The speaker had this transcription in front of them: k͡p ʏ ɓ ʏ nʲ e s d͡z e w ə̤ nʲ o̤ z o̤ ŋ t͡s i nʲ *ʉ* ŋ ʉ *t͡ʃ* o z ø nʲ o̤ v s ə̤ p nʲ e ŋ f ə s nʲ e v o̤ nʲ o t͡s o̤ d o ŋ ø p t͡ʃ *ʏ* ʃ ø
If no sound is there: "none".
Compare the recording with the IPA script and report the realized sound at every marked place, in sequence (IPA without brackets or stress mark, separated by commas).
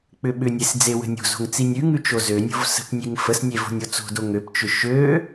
ʉ, t͡ʃ, ʏ